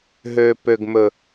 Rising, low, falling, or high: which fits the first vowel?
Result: low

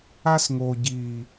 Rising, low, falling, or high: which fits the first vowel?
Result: high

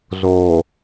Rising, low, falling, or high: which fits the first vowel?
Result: low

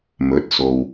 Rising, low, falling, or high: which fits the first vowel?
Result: rising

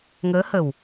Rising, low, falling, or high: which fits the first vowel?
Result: rising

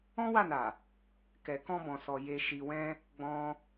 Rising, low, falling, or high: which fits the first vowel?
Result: high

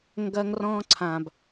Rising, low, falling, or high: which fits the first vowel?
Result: high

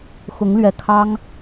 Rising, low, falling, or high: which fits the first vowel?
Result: rising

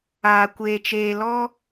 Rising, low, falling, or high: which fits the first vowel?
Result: low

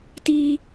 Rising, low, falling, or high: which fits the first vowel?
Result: high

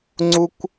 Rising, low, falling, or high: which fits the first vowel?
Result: high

